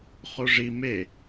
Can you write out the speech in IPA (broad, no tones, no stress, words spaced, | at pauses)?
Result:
χoʐi me